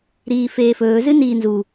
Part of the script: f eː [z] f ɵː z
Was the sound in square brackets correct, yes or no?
no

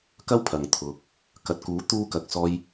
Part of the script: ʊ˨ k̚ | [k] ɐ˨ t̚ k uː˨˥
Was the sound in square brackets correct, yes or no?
yes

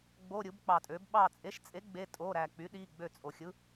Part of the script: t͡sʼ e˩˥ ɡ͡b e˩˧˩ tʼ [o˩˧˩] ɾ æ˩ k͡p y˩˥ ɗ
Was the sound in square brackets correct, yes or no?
yes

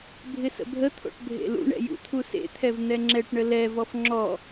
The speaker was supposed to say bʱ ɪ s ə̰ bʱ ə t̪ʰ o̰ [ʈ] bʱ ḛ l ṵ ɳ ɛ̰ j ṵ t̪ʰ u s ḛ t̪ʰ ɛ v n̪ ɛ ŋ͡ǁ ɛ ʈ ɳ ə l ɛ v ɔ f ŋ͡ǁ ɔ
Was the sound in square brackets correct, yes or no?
yes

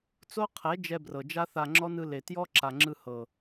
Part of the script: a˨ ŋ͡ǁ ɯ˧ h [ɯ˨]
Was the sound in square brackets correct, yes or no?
no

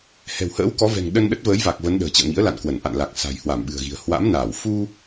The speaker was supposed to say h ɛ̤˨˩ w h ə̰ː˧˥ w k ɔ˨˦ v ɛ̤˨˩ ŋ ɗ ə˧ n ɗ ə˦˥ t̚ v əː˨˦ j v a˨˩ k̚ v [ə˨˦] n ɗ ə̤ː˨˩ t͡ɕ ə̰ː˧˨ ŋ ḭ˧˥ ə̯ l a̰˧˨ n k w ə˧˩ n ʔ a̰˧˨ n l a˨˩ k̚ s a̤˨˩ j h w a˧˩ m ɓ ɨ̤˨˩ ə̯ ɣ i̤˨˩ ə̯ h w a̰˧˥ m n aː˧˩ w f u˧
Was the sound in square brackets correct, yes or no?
yes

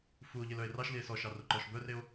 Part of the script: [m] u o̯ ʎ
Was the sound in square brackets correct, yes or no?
no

